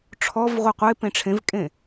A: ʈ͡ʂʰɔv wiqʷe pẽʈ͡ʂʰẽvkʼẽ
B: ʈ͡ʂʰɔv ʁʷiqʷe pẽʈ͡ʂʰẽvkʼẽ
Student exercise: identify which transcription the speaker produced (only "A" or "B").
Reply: B